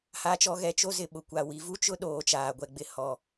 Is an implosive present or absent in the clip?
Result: present